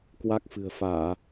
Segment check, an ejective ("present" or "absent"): absent